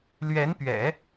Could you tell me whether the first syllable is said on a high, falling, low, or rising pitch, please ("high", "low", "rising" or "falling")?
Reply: rising